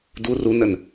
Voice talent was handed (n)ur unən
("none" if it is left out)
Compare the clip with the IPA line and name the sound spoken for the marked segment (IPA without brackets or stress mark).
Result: d